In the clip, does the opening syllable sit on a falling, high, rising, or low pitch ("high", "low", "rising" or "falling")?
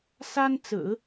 high